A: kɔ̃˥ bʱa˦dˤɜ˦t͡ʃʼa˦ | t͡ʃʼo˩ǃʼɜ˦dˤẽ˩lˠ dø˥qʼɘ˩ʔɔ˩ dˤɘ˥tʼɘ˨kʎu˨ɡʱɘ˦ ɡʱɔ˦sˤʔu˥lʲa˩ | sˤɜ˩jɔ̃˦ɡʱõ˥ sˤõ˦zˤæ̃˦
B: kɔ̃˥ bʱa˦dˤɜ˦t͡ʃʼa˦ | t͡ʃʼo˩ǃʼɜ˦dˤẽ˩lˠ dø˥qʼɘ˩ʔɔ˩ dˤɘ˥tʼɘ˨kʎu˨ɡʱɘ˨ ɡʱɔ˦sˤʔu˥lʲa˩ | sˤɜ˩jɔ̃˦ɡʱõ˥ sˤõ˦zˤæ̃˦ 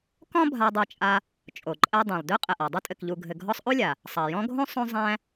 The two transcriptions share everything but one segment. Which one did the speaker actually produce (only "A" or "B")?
B